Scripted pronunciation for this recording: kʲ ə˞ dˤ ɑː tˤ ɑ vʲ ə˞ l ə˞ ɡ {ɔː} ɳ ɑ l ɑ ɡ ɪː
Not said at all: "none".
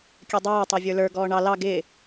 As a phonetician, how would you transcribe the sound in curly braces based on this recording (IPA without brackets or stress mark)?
ɔː